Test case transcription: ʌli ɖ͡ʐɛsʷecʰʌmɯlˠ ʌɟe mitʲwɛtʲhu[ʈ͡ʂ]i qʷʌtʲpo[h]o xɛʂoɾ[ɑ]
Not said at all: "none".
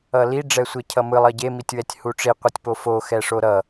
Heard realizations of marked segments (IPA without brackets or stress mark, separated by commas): ʈ͡ʂ, f, ʌ